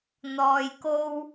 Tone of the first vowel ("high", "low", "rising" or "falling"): low